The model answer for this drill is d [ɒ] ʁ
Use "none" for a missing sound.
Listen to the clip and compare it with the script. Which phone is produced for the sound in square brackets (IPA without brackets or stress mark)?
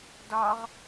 ɒ